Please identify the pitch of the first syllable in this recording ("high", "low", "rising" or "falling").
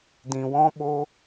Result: low